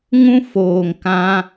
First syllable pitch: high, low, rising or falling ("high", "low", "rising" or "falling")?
high